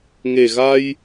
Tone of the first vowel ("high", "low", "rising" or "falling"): low